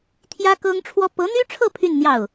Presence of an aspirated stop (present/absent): present